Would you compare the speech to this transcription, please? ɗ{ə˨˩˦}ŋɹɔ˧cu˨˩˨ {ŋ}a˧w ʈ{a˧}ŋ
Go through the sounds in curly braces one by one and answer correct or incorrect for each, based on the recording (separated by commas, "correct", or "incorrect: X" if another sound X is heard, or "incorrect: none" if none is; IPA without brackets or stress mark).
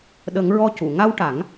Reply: correct, correct, incorrect: a˨˩˦